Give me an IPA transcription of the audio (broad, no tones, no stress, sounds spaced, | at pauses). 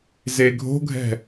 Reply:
z e ɡʱ o̤ ɡʱ ɛ̤